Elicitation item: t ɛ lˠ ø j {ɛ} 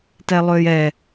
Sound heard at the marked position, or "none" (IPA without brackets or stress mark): ɛ